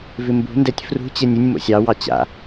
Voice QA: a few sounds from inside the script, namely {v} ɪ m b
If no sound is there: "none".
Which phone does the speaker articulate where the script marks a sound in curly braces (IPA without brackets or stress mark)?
v